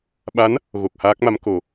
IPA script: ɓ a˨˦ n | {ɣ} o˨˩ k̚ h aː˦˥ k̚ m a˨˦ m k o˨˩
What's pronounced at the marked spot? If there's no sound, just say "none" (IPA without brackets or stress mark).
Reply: ɣ